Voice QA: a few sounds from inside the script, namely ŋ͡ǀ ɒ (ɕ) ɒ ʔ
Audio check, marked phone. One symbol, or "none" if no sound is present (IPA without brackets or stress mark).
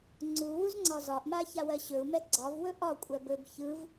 z